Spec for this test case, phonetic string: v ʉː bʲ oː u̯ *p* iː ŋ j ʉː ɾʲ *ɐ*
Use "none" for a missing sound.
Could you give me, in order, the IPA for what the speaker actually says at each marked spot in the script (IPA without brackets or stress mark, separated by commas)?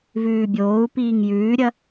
p, ɐ